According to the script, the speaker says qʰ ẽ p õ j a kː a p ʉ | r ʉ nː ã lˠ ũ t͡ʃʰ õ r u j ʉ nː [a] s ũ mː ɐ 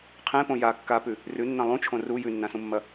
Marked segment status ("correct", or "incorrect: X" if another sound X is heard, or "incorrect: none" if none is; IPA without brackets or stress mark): incorrect: ã